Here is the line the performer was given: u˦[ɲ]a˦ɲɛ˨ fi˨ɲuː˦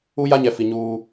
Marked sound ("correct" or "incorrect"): incorrect